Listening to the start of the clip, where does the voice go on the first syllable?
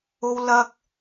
high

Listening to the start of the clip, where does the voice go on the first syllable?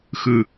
low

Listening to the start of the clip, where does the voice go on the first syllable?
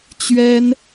high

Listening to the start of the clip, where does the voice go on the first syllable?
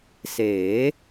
rising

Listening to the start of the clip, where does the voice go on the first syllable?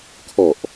low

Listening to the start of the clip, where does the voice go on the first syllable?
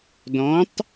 rising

